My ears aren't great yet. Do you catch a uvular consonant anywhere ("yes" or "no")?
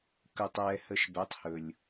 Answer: no